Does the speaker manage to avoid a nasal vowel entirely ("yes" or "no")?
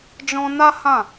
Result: no